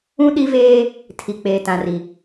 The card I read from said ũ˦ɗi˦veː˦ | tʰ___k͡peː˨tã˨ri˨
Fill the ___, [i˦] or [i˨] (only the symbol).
i˨